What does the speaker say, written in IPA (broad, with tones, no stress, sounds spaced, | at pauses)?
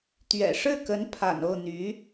t̪ ɥ ɛ̰˨˩ ʂ ɻ̩˥˩ k ə˧˥ n pʰ a̰˨˩ n o˥˩ ʊ̯ n̪ y˧˥